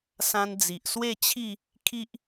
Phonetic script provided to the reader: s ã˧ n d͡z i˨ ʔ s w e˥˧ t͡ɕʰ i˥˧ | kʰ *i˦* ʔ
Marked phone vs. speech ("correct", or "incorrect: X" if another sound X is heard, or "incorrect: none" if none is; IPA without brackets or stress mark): correct